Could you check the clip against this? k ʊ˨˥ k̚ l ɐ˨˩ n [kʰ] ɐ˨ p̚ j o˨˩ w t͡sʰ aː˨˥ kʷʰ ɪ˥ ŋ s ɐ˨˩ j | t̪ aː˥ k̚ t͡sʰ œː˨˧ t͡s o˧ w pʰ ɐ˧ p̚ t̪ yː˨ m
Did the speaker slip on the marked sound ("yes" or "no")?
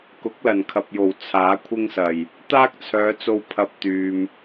no